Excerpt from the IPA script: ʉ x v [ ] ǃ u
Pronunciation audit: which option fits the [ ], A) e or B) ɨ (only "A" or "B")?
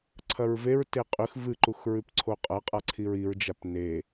B